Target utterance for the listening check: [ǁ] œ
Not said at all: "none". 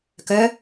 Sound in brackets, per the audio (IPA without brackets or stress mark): k